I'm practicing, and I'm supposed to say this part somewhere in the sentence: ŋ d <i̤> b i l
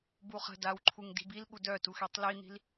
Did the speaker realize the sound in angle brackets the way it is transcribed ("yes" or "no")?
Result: yes